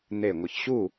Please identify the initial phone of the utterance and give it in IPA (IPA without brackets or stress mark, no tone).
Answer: n̪